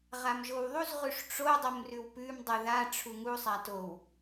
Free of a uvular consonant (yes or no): no